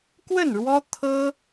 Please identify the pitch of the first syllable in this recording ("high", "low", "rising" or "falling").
falling